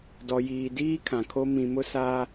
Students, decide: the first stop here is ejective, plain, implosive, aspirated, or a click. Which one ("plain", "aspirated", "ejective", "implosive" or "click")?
plain